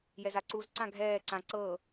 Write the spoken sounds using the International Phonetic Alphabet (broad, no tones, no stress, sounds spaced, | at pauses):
j ɛ z a ǀ u z ǀ ã ɡʱ ɛː ǀ ã ǀ ɤ